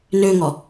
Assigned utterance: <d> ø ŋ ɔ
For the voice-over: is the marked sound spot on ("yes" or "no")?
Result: no